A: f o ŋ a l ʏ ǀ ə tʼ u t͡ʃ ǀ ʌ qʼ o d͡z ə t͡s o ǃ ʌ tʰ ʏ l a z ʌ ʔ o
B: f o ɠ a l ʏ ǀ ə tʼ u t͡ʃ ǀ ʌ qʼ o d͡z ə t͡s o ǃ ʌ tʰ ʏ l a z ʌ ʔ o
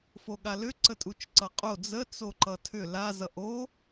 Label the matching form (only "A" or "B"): B